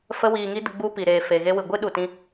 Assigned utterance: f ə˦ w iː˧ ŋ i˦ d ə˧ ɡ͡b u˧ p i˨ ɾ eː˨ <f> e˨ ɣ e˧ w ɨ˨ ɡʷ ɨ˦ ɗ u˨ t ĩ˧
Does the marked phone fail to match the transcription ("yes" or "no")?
no